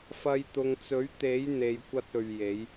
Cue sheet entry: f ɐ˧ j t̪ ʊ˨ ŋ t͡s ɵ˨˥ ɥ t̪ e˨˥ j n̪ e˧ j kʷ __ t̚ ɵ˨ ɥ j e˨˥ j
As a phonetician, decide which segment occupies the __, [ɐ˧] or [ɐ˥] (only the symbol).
ɐ˥